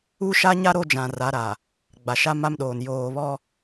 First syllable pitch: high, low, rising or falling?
high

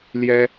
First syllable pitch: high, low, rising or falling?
high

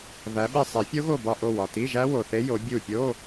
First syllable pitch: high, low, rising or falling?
rising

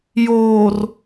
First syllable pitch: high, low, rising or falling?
low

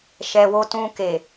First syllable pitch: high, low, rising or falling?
low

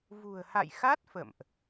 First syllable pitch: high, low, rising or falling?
low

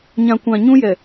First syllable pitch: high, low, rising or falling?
low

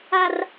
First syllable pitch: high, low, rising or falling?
high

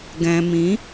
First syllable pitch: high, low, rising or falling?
low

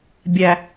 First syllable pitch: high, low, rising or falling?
high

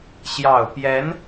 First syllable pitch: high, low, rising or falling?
low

